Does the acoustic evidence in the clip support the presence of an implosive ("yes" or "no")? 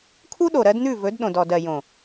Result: yes